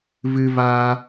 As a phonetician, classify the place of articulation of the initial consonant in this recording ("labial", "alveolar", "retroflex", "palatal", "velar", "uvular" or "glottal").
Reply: labial